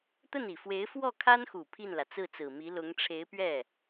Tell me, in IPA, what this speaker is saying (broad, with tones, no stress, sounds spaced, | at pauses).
t̪ ə˥˩ n i˨˩ f w e˧˥ ɪ̯ f w ɔ˥˩ kʰ a˥ n x u˨˩ pʰ i˥˩ n l ä˩ t͡s ɹ̩˥˩ t͡s ɹ̩˨˩ m i˧˥ l ʊ˧˥ ŋ ʈ͡ʂʰ e˧˥ ɪ̯ p ɥ ɛ˥˩